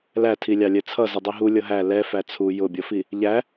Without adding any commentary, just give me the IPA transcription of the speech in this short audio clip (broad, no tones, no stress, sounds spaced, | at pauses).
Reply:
l æ tʰ i lʲ ɑ lʲ ɛ t͡sʰ ʌ z ɪ dˤ i ɦ u lʲ ʌ ɦ æ l ɛ f æ t͡sʰ u j ʊ bʲ ʌ f i | ʎ æ